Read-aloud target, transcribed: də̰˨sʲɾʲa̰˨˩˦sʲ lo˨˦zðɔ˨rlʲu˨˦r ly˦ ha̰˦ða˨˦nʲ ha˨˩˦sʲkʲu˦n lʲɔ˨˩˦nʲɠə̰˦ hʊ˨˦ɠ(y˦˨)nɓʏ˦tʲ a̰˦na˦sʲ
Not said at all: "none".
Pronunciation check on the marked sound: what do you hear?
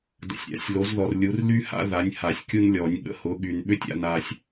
y˨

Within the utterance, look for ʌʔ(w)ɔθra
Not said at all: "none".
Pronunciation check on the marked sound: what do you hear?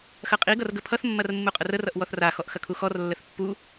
w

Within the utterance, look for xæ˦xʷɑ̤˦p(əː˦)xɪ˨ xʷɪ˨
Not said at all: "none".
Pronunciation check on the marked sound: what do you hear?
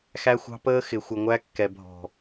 əː˦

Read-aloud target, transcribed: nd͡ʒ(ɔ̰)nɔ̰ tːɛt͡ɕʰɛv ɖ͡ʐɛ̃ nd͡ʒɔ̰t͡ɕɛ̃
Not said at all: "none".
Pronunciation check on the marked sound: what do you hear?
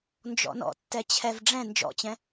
ɔ̰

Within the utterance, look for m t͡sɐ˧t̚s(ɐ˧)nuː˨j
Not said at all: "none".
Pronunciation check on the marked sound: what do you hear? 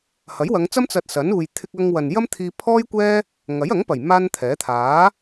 ɐ˨˥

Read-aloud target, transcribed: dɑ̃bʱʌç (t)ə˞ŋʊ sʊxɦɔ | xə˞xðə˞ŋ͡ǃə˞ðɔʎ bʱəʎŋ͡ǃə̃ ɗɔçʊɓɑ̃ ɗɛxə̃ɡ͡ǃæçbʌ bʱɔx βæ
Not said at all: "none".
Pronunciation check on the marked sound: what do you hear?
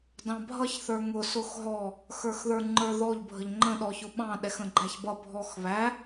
θ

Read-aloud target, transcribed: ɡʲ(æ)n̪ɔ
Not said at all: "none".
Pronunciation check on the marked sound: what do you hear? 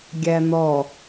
æ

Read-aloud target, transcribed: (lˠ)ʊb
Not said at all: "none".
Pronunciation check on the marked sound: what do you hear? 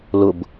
l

